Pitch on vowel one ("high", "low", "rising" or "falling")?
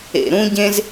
low